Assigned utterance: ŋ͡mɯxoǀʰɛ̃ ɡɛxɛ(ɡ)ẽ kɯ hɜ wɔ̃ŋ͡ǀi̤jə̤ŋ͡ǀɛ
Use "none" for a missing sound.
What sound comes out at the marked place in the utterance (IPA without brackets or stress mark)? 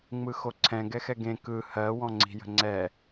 ɡ